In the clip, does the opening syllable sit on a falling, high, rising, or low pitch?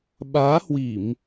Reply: rising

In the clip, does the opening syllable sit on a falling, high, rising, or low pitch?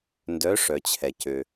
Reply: rising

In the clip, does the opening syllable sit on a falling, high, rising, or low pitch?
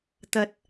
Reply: rising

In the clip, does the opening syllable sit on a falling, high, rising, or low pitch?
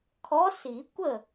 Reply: rising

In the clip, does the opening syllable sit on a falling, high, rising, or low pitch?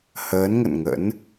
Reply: rising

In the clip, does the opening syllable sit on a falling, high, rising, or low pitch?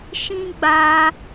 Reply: high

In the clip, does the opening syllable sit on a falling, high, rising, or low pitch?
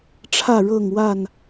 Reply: falling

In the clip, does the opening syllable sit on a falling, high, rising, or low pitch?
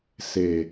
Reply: low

